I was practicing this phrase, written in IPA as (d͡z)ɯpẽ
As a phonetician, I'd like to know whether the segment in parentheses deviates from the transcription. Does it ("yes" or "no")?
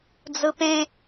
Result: no